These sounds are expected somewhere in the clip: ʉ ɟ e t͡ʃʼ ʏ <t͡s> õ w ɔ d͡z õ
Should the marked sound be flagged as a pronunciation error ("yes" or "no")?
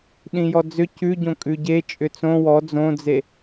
no